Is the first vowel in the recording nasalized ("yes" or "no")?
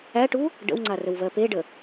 no